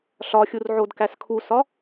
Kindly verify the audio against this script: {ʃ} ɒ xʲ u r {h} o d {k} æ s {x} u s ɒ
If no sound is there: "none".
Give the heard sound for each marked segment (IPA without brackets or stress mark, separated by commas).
ɬ, ʕ, k, kʰ